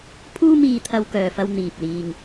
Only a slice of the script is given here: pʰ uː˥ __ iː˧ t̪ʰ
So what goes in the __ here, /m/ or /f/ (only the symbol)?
m